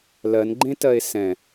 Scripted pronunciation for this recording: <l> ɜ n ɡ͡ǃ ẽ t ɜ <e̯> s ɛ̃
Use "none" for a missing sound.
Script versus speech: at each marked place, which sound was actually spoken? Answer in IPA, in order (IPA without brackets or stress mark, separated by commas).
l, e̯